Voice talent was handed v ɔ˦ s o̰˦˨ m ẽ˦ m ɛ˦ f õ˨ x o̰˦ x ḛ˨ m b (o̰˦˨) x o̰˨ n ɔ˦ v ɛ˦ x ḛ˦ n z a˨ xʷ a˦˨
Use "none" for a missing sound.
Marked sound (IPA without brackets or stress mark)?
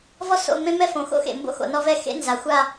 o̰˦